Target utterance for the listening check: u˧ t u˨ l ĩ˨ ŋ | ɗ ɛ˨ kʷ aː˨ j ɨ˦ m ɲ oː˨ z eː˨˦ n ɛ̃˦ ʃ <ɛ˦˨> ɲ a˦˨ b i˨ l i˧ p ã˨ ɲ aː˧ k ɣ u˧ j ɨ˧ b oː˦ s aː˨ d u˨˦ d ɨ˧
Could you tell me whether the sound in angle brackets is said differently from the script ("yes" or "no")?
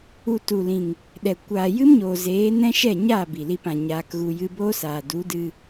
no